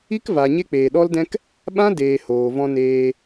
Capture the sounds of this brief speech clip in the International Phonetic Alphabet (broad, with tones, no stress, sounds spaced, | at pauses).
i˦ k v a˨ ɲ e˦ k͡p eː˨ ɗ ɔ˦ l d ɛ̃˦ k | ɓ ã˦ d eː˨ h oː˨ v ɔ̃˧ n eː˧